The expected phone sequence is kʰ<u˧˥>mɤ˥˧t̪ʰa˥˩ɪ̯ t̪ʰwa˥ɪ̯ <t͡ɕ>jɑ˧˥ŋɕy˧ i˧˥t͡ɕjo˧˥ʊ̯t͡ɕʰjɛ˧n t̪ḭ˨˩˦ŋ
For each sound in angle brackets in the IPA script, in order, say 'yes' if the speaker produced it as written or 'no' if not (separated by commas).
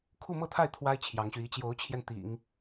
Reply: no, no